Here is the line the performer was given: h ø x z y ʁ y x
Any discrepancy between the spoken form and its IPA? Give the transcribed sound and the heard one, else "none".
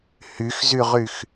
ø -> y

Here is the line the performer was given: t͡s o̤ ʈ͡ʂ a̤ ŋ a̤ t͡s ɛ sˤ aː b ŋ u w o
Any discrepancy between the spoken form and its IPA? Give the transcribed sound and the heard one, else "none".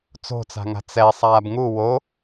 ʈ͡ʂ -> t͡s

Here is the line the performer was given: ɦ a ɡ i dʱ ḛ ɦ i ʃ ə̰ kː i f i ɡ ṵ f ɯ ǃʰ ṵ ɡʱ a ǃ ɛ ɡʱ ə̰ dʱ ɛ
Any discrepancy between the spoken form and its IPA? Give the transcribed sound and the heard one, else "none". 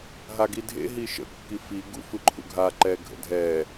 none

